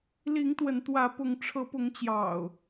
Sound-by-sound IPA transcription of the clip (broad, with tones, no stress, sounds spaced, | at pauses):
l i˨˦ ŋ t̪ w ə˨˦ n t̪ w ä˨˦ p ʊ˨˦ ŋ ʈ͡ʂʰ ɤ˨˦ p ʊ˨˦ ŋ t͡ɕ j ɑ̰˨˩ ʊ̯